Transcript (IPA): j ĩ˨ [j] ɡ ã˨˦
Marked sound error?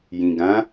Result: yes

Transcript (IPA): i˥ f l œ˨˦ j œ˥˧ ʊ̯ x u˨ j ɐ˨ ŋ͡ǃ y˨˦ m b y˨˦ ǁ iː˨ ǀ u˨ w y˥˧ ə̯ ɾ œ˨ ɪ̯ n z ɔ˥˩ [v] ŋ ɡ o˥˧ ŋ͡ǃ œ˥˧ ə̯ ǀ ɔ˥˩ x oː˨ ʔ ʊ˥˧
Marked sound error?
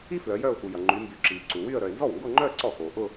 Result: yes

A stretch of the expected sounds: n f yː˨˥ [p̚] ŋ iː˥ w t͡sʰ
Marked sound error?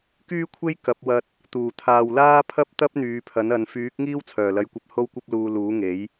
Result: yes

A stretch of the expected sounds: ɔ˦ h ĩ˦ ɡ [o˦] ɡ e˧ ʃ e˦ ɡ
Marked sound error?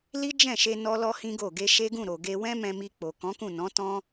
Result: yes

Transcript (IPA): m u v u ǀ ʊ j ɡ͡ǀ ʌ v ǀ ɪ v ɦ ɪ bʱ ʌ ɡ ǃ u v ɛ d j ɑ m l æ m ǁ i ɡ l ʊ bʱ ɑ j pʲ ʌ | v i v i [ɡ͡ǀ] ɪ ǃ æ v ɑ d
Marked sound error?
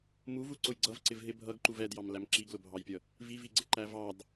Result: no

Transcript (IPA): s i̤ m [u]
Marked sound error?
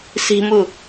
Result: no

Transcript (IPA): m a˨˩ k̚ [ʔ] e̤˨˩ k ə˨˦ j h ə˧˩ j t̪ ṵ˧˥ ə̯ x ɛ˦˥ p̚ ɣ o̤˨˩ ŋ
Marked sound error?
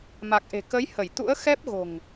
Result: no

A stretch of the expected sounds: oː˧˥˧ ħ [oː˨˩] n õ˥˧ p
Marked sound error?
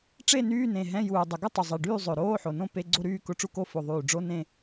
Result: yes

